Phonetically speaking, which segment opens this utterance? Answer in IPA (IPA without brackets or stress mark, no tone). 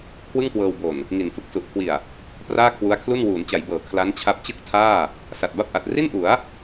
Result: kʰ